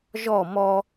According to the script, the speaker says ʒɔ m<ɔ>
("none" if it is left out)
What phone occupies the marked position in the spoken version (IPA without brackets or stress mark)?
ɔ